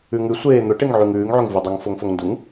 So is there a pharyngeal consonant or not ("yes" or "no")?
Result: yes